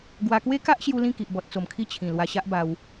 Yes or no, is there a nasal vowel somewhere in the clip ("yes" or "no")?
yes